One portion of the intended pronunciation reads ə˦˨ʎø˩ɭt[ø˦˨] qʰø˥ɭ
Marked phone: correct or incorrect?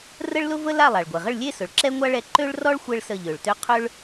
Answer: incorrect